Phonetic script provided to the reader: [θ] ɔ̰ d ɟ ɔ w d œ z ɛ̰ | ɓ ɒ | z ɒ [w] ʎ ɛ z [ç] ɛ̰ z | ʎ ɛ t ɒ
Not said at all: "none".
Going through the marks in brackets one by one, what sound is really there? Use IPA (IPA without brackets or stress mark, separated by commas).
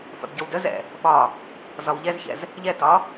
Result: θ, w, ç